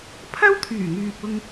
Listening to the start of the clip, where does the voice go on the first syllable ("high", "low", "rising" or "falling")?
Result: high